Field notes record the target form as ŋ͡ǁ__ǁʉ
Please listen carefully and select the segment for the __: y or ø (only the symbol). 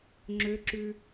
ø